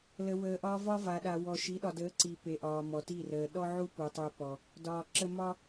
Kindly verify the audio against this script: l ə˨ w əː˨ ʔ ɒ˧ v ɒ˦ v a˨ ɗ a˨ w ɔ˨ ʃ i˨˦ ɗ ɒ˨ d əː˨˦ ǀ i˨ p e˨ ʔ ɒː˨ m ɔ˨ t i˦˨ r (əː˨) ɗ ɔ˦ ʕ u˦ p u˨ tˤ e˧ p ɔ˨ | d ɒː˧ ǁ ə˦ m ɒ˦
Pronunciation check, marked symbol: correct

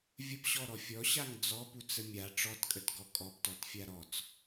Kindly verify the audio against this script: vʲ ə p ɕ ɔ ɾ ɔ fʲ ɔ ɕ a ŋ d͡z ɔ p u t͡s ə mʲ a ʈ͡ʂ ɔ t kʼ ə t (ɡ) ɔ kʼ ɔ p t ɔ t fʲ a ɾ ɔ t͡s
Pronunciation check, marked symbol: correct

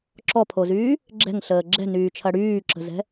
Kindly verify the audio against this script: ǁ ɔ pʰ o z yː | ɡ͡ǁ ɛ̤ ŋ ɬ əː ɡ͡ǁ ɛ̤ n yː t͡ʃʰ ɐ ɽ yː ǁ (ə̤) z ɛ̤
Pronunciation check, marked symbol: correct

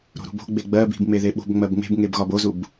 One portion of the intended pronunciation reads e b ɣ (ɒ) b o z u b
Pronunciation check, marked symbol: correct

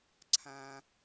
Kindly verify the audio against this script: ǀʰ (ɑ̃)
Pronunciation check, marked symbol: incorrect: ã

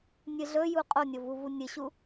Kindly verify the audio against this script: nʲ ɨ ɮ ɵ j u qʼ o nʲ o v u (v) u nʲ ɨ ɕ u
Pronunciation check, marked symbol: correct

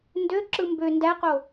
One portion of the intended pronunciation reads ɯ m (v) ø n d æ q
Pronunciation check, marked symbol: incorrect: b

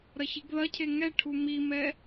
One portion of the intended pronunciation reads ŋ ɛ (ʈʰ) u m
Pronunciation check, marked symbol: correct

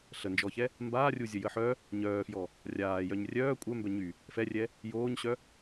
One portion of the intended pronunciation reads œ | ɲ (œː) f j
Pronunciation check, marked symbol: correct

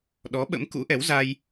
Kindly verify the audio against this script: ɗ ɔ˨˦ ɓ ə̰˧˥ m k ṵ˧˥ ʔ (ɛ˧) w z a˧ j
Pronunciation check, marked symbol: incorrect: ɛ˨˦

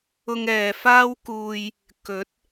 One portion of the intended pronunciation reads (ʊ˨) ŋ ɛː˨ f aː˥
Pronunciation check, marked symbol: incorrect: ʊ˧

